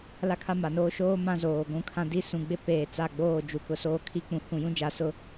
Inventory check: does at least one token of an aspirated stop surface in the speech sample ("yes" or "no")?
yes